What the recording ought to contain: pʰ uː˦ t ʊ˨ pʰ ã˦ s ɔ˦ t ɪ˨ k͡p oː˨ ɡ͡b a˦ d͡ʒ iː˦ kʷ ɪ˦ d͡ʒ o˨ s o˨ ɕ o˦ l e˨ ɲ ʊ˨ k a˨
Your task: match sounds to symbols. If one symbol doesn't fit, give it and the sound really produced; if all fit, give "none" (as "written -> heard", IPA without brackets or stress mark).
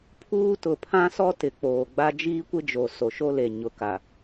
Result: ɕ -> ʃ